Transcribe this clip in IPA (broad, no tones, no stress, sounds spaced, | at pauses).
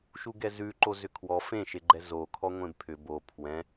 ʃ u ɡ ɛ z ʉ ǃ o z ʏ kʰ w ɔ f ẽ ʃ e ɡ͡ǃ ɛ z o kʰ ɔ ŋʷ ẽ b pʰ ʏ b o pʰ w ɛ̃